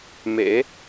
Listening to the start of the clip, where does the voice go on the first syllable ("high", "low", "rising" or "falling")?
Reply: rising